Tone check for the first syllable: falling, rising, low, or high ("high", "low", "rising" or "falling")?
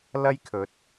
high